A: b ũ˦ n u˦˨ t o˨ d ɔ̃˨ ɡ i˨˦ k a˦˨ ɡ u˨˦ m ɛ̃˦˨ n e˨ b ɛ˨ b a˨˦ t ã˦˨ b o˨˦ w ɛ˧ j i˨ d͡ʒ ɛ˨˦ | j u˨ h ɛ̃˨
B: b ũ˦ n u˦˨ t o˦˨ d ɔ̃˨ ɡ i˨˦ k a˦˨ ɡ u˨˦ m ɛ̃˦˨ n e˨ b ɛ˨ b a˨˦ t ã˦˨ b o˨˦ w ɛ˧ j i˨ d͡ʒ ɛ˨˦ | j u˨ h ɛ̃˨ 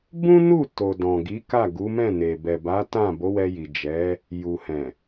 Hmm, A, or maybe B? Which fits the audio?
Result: A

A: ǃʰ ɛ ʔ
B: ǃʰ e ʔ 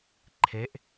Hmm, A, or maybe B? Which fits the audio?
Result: B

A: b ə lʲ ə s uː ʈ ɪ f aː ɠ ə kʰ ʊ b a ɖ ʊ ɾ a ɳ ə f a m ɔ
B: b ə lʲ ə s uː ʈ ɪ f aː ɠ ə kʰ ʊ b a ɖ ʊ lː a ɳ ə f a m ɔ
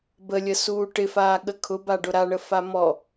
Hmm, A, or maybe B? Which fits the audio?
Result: A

